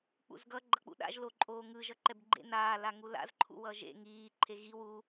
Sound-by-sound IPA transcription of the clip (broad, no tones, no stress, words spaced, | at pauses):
k͡pṵzɡʌ ɡ͡ǃʌk͡pṵɗa̰ʒ loǃʼoːŋɯ ʒʌǃɛbɡ͡ǃḛ naː laŋula̰z ǃʰṵwʌːʒḛ ŋiː ǃʰeɣi wu